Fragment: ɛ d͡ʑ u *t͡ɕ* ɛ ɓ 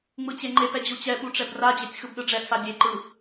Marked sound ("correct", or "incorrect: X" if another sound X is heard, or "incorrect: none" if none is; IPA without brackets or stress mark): correct